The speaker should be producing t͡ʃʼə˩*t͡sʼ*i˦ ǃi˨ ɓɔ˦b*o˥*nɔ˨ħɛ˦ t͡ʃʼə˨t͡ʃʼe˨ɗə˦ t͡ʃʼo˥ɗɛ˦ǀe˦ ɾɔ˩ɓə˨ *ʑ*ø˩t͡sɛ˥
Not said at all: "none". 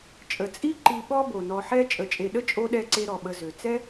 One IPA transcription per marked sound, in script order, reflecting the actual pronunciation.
t͡sʼ, o˩, z

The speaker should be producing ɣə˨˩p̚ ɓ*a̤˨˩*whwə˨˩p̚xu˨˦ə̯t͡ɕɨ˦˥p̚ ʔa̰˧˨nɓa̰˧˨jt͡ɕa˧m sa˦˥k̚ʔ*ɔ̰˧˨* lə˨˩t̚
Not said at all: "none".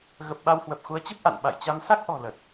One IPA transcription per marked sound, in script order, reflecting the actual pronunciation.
a˧, ɔ̤˨˩

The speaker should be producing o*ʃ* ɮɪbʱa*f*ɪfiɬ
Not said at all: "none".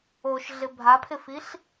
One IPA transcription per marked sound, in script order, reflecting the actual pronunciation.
ʃ, pʰ

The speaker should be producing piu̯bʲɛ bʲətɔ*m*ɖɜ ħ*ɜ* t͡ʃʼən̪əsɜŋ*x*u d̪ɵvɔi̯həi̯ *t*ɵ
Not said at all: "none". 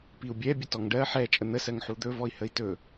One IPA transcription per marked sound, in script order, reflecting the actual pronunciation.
ŋ, ɛ, ħ, t

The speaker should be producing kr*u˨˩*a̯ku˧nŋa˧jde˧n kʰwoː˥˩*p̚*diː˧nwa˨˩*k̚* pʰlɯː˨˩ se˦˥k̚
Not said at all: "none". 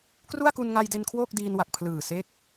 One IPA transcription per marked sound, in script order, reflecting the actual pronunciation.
u˥˩, k̚, k̚

